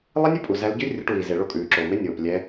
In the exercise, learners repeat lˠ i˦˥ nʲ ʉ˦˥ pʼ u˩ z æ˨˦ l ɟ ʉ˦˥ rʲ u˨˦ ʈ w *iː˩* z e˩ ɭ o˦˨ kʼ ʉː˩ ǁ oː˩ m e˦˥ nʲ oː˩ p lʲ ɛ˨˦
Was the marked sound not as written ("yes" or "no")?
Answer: no